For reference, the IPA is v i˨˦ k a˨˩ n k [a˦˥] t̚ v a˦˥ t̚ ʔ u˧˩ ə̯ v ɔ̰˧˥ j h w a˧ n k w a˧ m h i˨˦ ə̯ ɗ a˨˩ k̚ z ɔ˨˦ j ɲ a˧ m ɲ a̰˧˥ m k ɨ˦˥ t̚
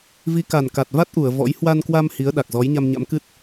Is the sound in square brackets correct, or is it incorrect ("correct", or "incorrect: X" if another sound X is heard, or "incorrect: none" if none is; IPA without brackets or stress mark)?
incorrect: a˨˩